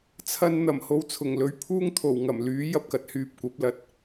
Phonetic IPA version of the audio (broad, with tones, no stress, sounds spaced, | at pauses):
t͡sʰ ɐ˧ n n̪ ɐ˨˩ m h o˧ w t͡sʰ ʊ˨˩ ŋ l ɵ˨˥ ɥ pʰ uː˥ ŋ t̪ʰ o˨˩ w ŋ ɐ˨˩ m l yː˨˥ j ɐ˥ p̚ k ɐ˨˥ t̚ h yː˧ p̚ kʷ ɐ˨˥ p̚ l ɐ˨˥ t̚